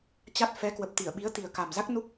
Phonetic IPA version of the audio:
t͡ɕa˦˥t̚ fɛ˨˦kwə˨˩p̚ t̪i˧˩ə̯ ɓi˨˦ə̯t̪i˨˩ə̯ka˨˩mza˦˥k̚ nu˦˥k̚

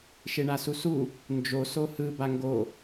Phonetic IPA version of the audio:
ʃeɳasusu | nd͡ʒo sohɯ baŋɡo

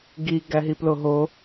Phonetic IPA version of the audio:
ɡi ɡæɦiploɦo

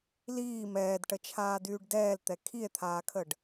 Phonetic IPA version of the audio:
liː mɛːdʈət͡ʃʰaːdyːɖ dɛːlt̪ɛ kʰie̯t̪ʰaːkʰəɖ

